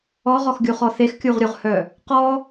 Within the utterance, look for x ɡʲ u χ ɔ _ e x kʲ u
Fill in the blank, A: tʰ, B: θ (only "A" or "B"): B